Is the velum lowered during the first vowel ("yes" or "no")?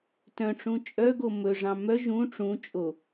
yes